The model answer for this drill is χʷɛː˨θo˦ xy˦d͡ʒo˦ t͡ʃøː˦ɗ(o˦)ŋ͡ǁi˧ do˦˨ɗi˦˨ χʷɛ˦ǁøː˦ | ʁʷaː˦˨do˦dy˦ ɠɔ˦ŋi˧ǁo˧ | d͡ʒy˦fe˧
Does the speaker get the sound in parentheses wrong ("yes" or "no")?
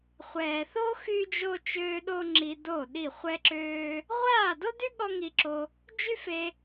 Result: no